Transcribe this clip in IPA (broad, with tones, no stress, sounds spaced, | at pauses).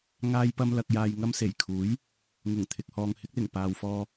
ŋ aː˥ j p ɐ˥ m l ɐ˧ k̚ j aː˧ j ŋ ɐ˥ m s e˨˩ j kʰ uː˨˥ j | ŋ ʊ˨˩ ŋ t̪ʰ ɪ˨ k̚ h ɔː˨ ŋ h ɪ˥ k̚ l ɪ˨˩ ŋ p aː˨ w f ɔː˧